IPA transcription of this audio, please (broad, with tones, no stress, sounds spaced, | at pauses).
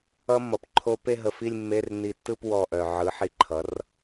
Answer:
ʌ˧ mː ʌ˩ p ǃʰ o˧ p e˥˧ ɦ ə˧˩ f i˥˧ lʲ mː e˧˥˧ r n i˧˩ tː ɯ˥˧ p w ɔ˧˩ ʔ œ˩ ʕ ɯ˩˥ ħ i˧˩ ǃʰ ʌ˩˥ r